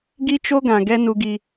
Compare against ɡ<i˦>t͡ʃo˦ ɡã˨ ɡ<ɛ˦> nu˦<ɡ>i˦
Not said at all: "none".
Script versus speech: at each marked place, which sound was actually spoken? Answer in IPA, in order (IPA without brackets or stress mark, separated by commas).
i˦, ɛ˦, ɡ